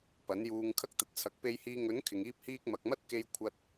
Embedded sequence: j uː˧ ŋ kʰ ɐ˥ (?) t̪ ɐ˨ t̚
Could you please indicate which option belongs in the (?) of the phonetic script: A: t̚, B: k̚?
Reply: B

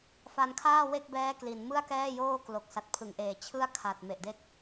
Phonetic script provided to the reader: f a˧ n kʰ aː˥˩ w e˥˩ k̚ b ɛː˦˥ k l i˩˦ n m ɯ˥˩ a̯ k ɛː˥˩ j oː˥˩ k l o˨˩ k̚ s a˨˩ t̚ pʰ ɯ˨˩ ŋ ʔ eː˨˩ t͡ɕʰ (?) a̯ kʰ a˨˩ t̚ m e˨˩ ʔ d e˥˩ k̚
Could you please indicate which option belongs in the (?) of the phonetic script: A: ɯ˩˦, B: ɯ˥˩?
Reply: B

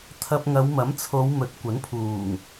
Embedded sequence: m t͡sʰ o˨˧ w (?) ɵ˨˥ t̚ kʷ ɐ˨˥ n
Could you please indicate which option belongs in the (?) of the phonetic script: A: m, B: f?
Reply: A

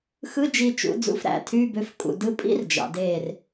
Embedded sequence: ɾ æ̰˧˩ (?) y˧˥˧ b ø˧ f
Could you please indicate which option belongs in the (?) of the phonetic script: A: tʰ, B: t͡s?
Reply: A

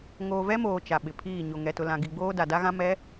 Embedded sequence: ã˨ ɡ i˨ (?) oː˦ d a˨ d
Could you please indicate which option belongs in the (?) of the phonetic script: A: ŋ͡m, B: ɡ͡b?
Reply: B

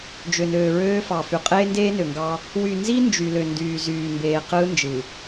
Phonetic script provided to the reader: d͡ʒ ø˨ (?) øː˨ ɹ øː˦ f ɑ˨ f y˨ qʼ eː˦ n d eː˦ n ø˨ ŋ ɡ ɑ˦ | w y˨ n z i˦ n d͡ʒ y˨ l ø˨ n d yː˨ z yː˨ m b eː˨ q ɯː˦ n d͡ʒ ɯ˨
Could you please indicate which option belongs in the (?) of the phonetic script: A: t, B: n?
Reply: B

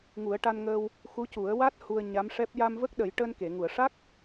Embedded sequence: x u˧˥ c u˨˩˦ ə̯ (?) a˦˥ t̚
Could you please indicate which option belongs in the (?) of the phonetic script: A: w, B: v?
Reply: A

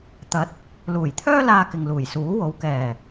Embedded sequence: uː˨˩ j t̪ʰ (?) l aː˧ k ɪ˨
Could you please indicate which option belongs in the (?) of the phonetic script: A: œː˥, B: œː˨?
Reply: A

